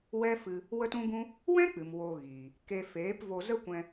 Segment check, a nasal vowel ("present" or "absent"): present